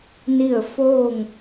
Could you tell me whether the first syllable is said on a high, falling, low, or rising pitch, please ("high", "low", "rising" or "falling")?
falling